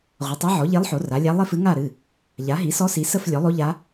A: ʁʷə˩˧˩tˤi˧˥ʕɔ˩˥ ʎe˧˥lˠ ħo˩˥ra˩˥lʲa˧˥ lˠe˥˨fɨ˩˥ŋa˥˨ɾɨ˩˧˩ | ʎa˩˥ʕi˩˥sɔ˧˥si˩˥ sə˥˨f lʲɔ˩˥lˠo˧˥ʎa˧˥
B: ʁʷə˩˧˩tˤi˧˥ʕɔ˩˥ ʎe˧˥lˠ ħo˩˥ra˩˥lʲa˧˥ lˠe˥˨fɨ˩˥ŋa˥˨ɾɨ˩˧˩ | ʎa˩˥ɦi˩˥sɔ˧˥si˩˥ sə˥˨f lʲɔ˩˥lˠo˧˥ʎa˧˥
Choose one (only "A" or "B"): B